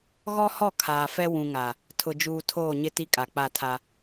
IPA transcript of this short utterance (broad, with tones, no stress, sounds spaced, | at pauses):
ɣ ɔ˦ h ɔ˦˨ kʰ aː˨ f ɛ˦ w ũ˨ ŋ a˨ | tʰ ʊ˨ d͡ʒ uː˨ tʰ oː˦˨ ɲ ɪ˦ t i˦ kʼ a˨ k͡p a˦˨ tʰ a˦